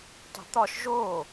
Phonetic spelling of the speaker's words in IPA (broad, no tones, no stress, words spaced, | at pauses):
tˤe̤t̪ɒʃ ʒo